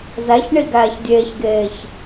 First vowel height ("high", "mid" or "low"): low